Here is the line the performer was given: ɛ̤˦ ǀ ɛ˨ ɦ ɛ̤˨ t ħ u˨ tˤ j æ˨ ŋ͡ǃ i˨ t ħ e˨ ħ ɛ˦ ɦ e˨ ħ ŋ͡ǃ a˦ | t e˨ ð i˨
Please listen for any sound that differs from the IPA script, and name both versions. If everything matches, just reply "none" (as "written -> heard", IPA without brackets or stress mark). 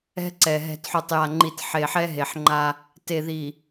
æ˨ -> a˨